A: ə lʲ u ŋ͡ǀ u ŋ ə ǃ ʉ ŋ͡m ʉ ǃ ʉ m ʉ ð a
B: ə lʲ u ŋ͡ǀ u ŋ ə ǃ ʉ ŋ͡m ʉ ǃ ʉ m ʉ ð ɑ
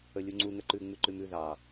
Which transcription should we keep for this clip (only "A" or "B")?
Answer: B